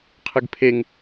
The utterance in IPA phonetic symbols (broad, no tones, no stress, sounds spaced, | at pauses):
qʰ ɨ ɡ pʰ e ŋ